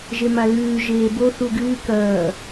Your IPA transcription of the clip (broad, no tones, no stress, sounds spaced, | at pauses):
ʒ e m a l ʉː ʒ eː b o θ u ɡ ɨː k ɐː